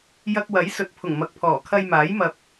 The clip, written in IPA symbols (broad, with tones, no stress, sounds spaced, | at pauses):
j ɐ˧ k̚ w ɐ˨˥ j s ɵ˨˥ t̚ pʰ ʊ˨˩ ŋ m ɐ˨ k̚ pʰ ɔː˨˩ kʰ ɐ˧ j m aː˨˥ j m ɐ˧ p̚